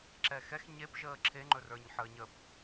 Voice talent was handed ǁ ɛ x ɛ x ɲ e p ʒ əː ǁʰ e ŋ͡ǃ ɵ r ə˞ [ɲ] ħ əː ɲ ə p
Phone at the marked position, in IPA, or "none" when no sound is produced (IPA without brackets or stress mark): ɲ